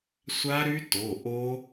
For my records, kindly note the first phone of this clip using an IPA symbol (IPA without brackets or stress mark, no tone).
sʷ